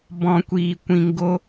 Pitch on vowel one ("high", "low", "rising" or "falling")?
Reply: low